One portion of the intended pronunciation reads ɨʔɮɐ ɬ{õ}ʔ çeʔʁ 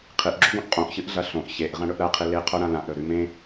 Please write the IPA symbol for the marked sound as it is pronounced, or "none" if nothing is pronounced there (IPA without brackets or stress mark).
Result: õ